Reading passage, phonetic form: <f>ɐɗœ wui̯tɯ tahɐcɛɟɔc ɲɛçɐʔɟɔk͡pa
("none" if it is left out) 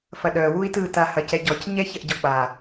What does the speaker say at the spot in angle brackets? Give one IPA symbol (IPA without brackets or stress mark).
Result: f